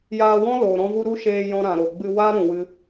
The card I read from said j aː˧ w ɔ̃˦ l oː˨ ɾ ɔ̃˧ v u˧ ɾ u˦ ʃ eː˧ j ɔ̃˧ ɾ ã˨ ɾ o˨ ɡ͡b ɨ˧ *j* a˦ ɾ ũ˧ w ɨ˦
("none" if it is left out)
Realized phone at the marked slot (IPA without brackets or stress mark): w